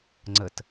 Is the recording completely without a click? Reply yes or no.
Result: no